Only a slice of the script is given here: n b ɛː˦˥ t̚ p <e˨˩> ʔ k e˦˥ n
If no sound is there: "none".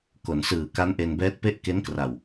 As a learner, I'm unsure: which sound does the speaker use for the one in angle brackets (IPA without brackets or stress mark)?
e˥˩